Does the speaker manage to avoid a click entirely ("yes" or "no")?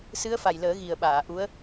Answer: yes